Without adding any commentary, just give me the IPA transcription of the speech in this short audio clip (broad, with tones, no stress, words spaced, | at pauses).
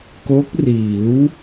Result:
ko˦˥k̚riː˩˦w